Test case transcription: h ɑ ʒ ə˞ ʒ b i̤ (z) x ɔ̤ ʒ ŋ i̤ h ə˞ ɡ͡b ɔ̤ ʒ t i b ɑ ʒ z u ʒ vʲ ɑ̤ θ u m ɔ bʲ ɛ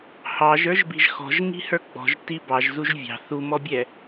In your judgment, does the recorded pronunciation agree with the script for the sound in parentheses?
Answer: no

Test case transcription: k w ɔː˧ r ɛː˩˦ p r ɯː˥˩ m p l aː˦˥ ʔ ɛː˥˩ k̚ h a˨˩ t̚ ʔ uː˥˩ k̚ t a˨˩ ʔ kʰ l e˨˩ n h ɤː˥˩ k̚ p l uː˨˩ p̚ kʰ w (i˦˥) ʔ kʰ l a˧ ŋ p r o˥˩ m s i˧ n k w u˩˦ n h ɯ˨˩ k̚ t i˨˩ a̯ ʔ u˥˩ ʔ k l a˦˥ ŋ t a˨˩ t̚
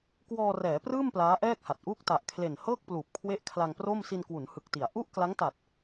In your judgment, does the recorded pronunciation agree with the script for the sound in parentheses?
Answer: no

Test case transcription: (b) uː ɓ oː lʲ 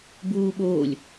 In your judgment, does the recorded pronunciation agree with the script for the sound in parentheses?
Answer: yes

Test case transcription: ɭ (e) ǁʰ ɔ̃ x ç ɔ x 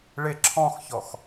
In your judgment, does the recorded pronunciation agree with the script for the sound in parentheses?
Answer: yes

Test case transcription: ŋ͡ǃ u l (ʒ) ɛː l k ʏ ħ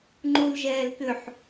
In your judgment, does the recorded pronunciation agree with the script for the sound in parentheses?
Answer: yes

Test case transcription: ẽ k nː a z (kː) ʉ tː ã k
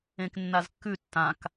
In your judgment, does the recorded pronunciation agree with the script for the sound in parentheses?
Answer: yes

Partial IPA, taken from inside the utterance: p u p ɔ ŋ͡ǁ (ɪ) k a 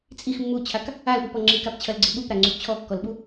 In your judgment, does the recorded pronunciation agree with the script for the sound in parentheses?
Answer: no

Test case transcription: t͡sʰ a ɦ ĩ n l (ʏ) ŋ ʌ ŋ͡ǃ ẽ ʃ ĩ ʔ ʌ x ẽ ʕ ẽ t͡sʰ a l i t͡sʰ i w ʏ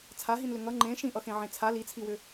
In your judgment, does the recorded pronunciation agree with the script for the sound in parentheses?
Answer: yes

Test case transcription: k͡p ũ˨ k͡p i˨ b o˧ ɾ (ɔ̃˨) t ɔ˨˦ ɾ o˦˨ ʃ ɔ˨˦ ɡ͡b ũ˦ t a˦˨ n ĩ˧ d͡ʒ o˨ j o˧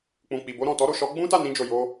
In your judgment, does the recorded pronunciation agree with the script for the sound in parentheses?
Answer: yes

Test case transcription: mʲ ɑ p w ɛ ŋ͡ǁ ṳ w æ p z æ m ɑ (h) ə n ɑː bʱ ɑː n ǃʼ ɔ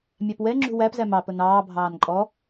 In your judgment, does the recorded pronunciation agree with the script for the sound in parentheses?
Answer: no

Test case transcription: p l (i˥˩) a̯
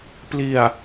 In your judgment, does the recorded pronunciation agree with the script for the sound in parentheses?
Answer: no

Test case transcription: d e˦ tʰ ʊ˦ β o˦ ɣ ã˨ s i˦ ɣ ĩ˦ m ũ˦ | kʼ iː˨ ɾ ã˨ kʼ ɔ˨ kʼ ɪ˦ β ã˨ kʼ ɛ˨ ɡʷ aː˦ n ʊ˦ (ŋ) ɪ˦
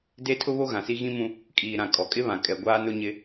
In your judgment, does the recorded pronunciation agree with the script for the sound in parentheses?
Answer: no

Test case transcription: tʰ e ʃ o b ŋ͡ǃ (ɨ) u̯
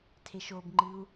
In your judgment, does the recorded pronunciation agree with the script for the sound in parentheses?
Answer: yes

